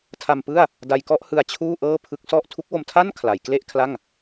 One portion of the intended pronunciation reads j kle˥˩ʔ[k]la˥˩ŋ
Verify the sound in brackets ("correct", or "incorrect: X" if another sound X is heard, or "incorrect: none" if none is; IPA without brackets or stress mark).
incorrect: kʰ